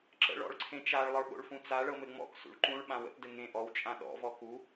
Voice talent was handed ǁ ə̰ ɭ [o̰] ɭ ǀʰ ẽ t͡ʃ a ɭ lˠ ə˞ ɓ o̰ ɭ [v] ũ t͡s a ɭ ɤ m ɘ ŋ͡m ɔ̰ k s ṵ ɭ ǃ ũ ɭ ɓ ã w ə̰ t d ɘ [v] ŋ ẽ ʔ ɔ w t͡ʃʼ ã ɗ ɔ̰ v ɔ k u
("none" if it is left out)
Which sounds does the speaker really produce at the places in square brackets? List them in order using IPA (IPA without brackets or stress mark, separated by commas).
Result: ɔ̰, f, none